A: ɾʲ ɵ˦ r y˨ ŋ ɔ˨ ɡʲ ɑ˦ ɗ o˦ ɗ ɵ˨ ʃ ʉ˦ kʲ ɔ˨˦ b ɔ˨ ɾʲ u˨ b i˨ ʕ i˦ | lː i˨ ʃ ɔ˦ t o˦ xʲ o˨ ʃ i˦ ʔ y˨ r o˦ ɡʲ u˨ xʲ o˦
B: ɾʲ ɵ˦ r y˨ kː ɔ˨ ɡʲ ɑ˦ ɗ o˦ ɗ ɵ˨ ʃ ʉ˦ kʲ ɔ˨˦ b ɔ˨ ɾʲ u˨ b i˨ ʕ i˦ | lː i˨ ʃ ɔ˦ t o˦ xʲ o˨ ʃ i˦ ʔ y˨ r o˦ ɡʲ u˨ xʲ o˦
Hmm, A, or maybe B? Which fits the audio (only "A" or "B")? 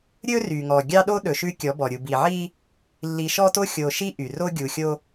A